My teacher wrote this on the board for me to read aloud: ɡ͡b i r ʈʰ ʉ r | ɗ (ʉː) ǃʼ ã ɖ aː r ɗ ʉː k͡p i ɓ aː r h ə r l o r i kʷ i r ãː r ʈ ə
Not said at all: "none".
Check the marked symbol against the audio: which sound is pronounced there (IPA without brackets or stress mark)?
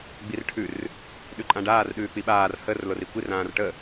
ʉ